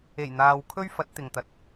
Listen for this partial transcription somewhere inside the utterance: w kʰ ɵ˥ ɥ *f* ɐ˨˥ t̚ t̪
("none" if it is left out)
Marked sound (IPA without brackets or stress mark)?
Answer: f